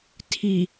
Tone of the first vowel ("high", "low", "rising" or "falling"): low